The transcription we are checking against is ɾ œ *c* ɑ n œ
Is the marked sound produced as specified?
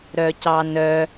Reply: yes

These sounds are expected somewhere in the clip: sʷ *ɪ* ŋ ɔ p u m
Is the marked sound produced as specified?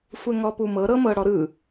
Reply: no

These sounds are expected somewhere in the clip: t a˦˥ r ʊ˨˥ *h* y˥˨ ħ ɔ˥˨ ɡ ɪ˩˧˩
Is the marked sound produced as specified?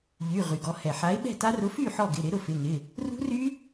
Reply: no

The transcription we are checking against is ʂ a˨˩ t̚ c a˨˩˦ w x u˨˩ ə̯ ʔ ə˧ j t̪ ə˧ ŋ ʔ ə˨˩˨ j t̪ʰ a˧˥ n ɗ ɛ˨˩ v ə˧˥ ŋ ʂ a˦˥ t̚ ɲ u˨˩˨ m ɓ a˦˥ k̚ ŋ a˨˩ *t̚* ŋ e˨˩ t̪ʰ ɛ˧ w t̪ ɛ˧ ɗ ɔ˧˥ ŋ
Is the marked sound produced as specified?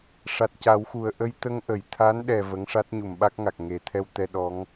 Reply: no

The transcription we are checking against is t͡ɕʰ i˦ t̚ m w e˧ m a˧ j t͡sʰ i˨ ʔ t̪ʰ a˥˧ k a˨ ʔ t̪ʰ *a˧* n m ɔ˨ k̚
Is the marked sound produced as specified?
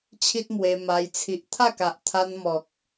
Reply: yes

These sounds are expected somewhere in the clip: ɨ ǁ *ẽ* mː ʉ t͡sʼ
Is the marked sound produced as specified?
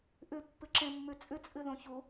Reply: yes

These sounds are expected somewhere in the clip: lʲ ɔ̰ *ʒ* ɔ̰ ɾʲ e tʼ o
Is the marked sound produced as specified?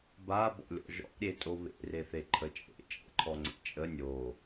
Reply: yes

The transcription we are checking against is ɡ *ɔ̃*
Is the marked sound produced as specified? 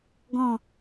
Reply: yes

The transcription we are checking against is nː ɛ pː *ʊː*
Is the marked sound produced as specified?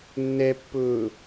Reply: yes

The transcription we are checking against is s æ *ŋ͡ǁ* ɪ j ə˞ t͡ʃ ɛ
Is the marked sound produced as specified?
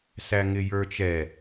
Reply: no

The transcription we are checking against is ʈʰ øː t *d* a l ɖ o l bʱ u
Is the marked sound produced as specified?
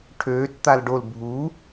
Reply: no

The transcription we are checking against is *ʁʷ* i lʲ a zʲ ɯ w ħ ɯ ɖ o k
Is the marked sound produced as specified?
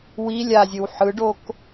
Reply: no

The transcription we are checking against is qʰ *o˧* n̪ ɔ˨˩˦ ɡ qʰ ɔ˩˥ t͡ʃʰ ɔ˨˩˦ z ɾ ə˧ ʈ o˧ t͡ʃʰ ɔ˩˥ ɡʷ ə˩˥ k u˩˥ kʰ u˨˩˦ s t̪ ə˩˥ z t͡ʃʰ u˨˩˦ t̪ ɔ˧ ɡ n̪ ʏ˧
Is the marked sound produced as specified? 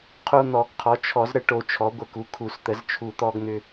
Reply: yes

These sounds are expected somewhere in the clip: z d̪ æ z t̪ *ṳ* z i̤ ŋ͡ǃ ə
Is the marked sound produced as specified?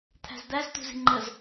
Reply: yes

